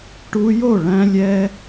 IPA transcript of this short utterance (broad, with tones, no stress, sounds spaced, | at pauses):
ʈ u˧ j o˦˨ ɭ æ̃˧ lʲ ɛ˧